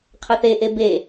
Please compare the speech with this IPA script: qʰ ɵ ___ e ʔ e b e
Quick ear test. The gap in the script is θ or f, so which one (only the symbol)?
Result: θ